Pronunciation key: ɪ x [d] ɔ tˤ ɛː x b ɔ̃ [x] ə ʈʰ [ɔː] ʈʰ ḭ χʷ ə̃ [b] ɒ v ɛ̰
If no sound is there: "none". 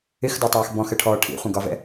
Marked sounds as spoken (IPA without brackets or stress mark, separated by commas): d, x, ɔː, ɡ